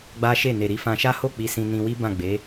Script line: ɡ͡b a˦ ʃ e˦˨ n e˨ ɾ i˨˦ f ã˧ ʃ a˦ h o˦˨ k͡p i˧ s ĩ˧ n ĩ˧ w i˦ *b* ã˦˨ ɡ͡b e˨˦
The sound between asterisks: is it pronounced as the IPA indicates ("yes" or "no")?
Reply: yes